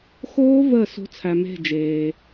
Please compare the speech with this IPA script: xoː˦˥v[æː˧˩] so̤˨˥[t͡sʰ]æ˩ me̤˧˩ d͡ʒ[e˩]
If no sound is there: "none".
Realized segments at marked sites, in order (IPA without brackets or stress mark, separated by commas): əː˧˩, t͡sʰ, eː˩